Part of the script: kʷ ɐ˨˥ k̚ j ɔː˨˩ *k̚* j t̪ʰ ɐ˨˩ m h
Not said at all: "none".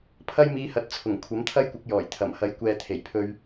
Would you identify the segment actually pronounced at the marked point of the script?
none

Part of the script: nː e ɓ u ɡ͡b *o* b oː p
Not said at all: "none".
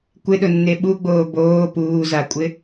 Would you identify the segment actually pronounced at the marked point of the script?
oː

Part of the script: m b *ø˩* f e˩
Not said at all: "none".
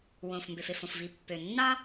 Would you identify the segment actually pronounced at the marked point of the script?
ø˩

